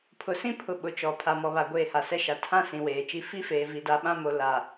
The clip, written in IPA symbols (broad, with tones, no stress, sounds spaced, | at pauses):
pʰ ʊ˨ s ĩ˦ pʰ ʊ˨ ɓ ʊ˨˦ t͡ʃ ɔ˨ pʰ a˨ m ɔ˨ β a˨ ɡʷ eː˦˨ h a˨ s ɛ˦ ʃ a˨ tʰ ã˦ s ĩ˨ w eː˨ t͡ʃ i˦ f i˦ f eː˨ v i˨ d a˨ ɓ ã˦ m o˨ l a˨